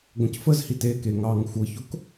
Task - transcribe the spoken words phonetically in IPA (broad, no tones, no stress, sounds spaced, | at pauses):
ɡʷ ə̃ c f ə z h i t e k e ŋ ɑ ŋ xʷ ɤ ç ʊ k